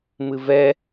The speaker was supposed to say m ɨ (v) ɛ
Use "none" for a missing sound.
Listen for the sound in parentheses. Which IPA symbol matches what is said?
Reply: v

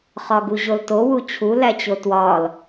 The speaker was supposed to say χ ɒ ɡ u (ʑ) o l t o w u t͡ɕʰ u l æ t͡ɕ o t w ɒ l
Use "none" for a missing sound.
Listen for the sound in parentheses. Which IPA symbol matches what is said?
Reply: ʑ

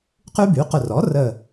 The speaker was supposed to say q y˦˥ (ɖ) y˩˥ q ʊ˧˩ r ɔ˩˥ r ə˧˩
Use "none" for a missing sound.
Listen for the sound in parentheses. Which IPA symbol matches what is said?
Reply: b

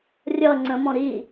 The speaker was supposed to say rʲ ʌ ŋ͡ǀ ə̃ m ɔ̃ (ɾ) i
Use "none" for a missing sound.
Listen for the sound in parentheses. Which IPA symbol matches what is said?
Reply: ɾ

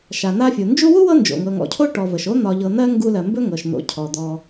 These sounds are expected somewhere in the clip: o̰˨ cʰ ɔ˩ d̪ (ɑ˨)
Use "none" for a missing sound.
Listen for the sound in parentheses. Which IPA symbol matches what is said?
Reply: ɔ˨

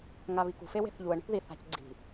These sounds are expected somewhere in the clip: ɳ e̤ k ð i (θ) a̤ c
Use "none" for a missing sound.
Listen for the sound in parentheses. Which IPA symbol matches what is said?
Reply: θ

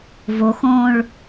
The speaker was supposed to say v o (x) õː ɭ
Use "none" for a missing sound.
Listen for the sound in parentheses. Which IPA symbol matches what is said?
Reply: x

